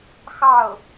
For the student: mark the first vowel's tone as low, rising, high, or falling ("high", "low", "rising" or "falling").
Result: falling